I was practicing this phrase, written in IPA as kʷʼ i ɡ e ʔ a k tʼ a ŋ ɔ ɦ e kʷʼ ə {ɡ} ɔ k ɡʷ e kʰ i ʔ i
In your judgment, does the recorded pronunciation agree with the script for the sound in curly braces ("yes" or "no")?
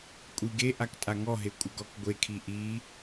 yes